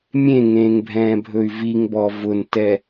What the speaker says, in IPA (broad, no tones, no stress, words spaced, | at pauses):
mʲẽŋẽːŋbʱɛ̃ːbʱɵy̯ viŋbɔ vʊntɛ